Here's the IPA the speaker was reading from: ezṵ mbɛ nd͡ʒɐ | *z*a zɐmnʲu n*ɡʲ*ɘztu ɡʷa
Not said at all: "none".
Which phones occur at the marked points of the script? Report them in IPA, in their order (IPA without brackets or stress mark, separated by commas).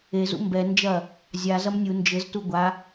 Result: zʲ, d͡ʒ